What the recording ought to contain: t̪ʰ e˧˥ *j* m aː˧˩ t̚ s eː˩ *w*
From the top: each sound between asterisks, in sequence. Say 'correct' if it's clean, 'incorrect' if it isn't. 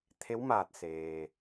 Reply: incorrect: w, incorrect: none

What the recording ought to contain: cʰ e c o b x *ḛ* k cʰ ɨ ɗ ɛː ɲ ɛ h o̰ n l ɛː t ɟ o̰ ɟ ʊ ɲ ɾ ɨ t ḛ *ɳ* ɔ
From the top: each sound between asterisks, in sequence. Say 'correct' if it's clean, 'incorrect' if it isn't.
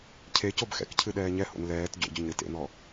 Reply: incorrect: ɛ̰, incorrect: n̪

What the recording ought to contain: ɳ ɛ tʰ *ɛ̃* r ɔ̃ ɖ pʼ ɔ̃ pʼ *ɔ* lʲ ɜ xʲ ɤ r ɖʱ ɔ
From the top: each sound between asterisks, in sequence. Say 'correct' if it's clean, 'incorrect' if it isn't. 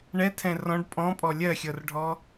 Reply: correct, correct

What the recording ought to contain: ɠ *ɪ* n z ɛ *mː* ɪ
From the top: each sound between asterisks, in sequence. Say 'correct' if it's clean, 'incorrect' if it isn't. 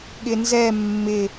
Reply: correct, correct

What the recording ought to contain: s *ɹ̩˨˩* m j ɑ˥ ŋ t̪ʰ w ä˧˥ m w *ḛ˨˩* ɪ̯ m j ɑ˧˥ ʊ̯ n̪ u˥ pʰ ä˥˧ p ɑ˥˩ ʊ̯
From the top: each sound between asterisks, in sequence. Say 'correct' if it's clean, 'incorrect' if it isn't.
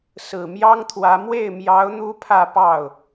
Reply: correct, incorrect: e˥˩

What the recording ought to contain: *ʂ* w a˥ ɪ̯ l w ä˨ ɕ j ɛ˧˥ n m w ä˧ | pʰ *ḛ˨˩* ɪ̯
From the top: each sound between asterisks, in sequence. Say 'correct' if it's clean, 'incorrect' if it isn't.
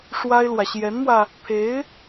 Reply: correct, incorrect: e˧˥

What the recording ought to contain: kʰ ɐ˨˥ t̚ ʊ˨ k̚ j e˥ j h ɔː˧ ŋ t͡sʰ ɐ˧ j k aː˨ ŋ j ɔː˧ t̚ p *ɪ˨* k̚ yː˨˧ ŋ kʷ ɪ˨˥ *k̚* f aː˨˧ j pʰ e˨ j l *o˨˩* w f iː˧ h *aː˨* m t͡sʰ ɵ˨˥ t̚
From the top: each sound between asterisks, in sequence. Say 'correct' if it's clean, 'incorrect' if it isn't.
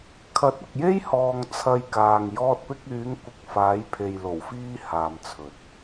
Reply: incorrect: ɪ˧, correct, correct, correct

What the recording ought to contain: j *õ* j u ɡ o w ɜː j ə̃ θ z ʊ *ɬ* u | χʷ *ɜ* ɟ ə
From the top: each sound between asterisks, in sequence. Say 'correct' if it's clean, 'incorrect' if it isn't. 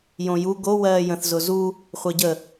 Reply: correct, incorrect: z, correct

